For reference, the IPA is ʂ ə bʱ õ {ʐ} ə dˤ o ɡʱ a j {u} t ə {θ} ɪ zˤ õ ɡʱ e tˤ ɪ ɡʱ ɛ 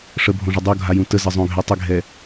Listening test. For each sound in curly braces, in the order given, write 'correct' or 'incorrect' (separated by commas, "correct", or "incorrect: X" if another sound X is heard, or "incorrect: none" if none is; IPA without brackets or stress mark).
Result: correct, incorrect: ũ, incorrect: z